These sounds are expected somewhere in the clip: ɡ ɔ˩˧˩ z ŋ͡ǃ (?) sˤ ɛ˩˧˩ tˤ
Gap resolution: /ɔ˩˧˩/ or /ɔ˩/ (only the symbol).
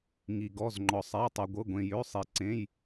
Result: ɔ˩